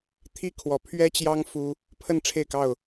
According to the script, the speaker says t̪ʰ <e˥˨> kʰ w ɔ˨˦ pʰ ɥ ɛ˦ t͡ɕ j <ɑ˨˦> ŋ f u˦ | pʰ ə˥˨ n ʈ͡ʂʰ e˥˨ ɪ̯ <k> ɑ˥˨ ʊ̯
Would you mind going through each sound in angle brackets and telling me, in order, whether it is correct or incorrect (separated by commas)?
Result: incorrect, incorrect, correct